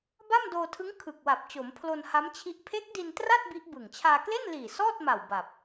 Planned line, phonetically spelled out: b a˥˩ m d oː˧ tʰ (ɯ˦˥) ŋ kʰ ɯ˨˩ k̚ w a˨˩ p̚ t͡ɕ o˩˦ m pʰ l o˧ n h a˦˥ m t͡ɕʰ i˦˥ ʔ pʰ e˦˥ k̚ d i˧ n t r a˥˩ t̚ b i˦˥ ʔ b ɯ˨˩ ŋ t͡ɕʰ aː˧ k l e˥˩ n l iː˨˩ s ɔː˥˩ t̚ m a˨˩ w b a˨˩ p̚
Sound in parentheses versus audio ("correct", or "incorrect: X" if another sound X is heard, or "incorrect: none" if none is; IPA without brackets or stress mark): correct